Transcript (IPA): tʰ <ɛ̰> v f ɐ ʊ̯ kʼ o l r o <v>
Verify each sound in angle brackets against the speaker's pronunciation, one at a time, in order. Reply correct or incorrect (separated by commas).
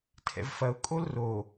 correct, incorrect